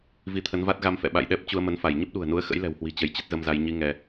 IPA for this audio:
vi˨˦t̪ʰə˨˦nva˦˥t̚ ɣa˧mfɛ̰˧˨ ɓa̰˧˨jɗɛ˦˥p̚ t͡ɕu˧ə̯mə˨˦nfa˧˩j ɲə˦˥p̚ɗṳ˨˩ə̯nu˨˦ə̯ xə̰˧˥jlɛ̤˨˩whwi̤˨˩ t͡ɕə˨˦jt͡ɕə˦˥t̚zə˧mza˧j ɲi˧ ŋɛ˧

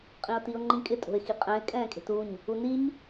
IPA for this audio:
qʼĩʊ̯tiʊ̯ŋ͡ǃĩkʼɪ tʼo̤ɪ̯xiqʼɛ̃ɪ̯ kʼɛ̃ːkʼe̤tuɲ | uniɲ

